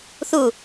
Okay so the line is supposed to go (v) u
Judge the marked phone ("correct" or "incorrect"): incorrect